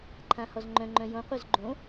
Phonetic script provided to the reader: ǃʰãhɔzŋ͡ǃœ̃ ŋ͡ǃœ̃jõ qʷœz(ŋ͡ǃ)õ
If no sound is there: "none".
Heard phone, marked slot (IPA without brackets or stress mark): ɡ͡ǃ